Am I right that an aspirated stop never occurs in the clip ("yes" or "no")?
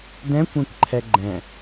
no